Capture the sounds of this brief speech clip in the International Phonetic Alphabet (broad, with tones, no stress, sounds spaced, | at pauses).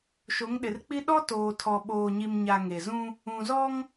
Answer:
ʃ o˨˦ ŋ ɗ ɪ˨ r k͡p i˦ ɗ ɔ˦ t oː˨ tʰ ɔ˨ ɓ oː˨ ɲ i˨ m ɲ a˨ ŋ e˨ z ũ˦ | ũ˨ z ɔ˦ ŋ